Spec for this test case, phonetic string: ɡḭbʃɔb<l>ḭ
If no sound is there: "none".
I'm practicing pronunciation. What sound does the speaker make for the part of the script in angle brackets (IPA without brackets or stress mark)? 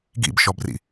r